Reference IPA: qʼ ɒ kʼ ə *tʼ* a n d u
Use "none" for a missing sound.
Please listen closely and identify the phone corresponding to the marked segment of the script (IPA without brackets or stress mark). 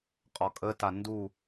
t